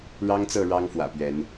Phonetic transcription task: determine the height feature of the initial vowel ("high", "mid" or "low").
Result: low